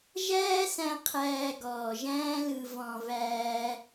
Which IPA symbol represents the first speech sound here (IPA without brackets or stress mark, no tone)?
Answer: ʒ